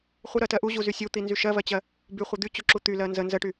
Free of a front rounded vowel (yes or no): no